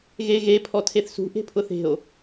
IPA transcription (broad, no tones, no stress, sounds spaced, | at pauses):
ɣ e ɣ e pʰ ɔ tʰ e θ s ṳ ʔ e̤ pʰ ʊ θ e̤ o̯